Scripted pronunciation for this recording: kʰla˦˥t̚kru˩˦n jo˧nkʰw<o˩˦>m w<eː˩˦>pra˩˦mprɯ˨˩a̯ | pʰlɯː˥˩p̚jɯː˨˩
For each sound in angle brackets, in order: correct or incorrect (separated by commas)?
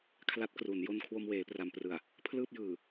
incorrect, correct